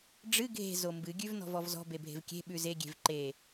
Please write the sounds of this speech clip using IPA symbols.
ɖ͡ʐɨ ɡʱe̤ zombɨ ɡʲʉvnɔ̤vɔvzɔ̤ bebʱe̤vkʲe̤ ɓʉze ɡʲe̤vǃe

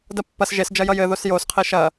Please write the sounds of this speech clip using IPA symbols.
dɐpːɐs ʒes d͡ʒɐjʌjɘ ðosjos qʰeʃɐ

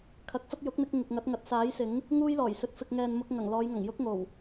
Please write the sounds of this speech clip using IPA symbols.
kʰɐ˨˥k̚fɐ˥t̚ jʊ˨˥k̚n̪ɪ˧k̚ ŋɪ˨k̚ŋɐ˨˥t̚ŋɐ˨˥t̚ saː˨˥jsɪ˨˥ŋ | ŋuː˥jlɔː˨˩jsɵ˧t̚fɪ˧k̚ ŋɛː˨nmʊ˧k̚ ŋɐ˨˩ŋ lɔː˨˧jŋɐ˨˩ŋ jʊ˥k̚ŋo˨˩w

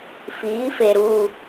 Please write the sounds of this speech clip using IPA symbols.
fiː˨˦fe˨ɾuː˨

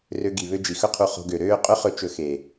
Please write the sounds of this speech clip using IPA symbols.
rø˧ɡi˨βø˧ d͡ʒi˨xɵ˦qʰu˧ χo̤˧ɡø˨ɾøː˦ qʼɵ˦χɵ˧t͡ʃɵ˨ xe˨

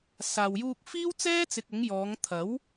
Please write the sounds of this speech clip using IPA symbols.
saː˨wjuː˧k̚ fiː˥wt͡sɛː˥t͡sɪ˨k̚ʊ˨˧ŋ jɔː˨˧ŋt̪ʰɐ˨˥w

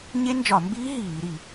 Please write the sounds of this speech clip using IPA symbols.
ɲe˦˥nd͡ʒɒ˧˩˧mbiː˦˥ ɦiː˧˩˧ ɾi˧˩˧

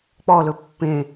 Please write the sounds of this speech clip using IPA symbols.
k͡pɔlɵ pːẽ

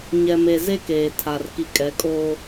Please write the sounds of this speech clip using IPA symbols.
ɲɛ˨me˨ ze˦keː˨tʰa˨r ki˨kʼɛ˨˦kʼoː˦

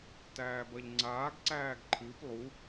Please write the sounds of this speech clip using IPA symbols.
tæːbɐʎŋ͡ǀaːɡ ǀæːɡǃʰɨp lˠu

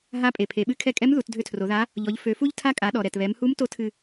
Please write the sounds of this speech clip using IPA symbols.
ɦa˧˥pʼe˩pʰe˩˧ɓɨ˧˥ kʰɛ˧kʼɛ˧˥m ðu˩˧tdʱø˧tʰro˩˧ða˧˥ | ʎɔ˩˧ʎ fø˩˧fu˥ʎ tʰa˧˥kʼa˩˧ɗɔ˩ ɾɛ˩tβɛ˩˧mhu˧˥m to˧˥tʰɨ˧

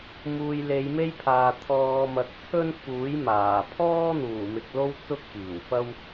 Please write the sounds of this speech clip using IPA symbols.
muː˨jle˨˧jme˥jpʰaː˨ t̪ʰɔː˨ mɐ˨k̚t͡sʰɵ˥n fuː˨˥j maː˨˩ pʰɔː˥n̪uː˨˩ mɪ˨k̚lo˥w t͡sʊ˥k̚piː˨˩wfɐ˥w

